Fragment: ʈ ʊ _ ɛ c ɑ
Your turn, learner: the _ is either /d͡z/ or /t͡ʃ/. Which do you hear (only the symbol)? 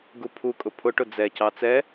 d͡z